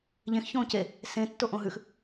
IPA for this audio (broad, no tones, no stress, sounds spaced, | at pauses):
ʎ ẽ x ç õː c e | s ẽ tː o ʔ õ ɦ ʉ x